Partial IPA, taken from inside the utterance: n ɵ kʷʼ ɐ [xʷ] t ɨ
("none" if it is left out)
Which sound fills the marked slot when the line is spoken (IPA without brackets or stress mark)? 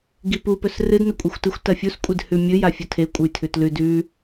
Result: xʷ